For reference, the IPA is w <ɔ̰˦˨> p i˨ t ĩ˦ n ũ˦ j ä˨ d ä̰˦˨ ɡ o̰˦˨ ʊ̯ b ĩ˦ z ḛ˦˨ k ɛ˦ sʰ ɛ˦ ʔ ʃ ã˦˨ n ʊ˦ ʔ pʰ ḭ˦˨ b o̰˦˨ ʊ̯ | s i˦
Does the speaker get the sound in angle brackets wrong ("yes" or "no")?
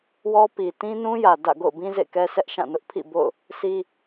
yes